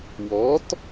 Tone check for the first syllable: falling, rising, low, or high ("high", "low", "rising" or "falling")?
rising